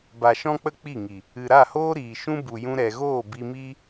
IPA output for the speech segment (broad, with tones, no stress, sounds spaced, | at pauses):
b a˨ ʃ ɔ̃˦ k͡p ə˦ k͡p i˦˨ ŋ i˨ | ɨ˨ ɾ a˦˨ h oː˦ ɾ iː˨ ʃ ũ˦ b u˨ j ũ˧ ɾ ɛ˨ ɣ oː˦˨ b i˧ m iː˦